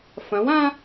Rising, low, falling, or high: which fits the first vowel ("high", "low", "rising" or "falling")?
rising